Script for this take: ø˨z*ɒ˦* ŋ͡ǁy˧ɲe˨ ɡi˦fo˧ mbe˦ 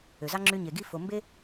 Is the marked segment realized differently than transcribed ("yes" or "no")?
yes